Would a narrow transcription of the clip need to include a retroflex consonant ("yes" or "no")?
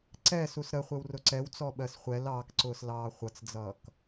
no